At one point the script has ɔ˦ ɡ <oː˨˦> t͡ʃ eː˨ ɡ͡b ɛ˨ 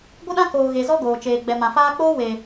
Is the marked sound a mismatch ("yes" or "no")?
yes